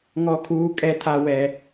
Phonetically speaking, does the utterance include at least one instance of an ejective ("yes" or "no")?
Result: yes